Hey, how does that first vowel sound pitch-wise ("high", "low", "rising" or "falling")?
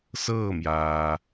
falling